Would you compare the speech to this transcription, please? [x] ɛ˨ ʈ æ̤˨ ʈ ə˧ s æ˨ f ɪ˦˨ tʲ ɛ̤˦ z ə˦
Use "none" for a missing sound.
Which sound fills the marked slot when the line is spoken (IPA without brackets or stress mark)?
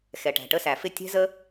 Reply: x